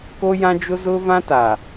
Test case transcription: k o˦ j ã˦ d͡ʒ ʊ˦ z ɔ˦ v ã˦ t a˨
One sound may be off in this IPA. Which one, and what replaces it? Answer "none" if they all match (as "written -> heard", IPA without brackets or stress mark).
ɔ˦ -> ʊ˦